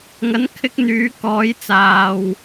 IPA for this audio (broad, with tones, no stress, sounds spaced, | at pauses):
ŋ ɐ˨˥ n kʰ ɪ˧ k̚ n̪ yː˨˥ k ɔː˨˥ j t͡s aː˨ w